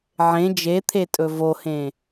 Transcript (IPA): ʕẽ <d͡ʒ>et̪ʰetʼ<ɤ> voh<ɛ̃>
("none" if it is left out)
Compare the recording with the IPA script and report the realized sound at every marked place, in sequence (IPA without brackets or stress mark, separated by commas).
d͡ʒ, ɵ, ẽ